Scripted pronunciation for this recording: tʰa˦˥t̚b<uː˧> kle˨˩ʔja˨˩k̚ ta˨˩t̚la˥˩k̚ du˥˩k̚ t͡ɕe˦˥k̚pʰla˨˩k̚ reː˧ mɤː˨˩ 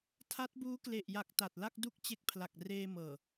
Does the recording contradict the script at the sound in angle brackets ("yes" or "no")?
yes